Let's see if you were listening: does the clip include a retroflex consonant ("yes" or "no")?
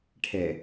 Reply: yes